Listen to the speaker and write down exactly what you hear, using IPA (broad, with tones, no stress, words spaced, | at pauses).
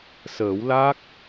səː˨˩˦wla˦˥k̚